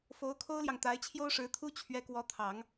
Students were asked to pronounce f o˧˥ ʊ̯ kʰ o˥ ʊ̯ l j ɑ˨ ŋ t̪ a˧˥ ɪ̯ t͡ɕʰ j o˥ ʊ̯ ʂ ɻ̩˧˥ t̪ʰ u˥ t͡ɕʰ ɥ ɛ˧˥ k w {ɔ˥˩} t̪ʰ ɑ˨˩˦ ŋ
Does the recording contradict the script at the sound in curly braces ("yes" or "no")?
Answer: yes